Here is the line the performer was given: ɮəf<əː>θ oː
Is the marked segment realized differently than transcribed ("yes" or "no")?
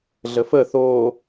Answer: no